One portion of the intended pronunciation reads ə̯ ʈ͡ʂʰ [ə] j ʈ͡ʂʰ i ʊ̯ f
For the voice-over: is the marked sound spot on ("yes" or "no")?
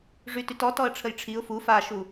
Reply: yes